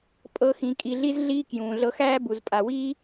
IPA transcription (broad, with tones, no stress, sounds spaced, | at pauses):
pʼ ɤ˥ x ĩ˧ kʼ i˧ ɮ i˥ z ɮ iː˥ k j ũː˩ ɮ ɤ˧ x æː˥ b u˩ z pʼ a˩ w iː˥